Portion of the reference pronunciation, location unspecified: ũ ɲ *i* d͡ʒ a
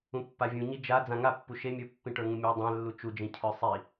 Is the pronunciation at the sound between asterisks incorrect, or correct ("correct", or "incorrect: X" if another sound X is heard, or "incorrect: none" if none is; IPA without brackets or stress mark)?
correct